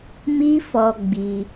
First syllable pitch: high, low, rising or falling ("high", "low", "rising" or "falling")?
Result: high